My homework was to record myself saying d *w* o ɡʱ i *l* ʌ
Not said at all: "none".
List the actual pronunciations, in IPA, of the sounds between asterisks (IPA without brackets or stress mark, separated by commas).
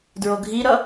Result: ɹ, ɾ